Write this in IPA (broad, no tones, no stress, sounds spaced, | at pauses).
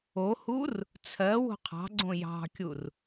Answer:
o h u r | t͡sʰ ɜ w o̤ qʰ ɑ̤ ɡ͡ǀ õ j ɑ̤ kʲ u r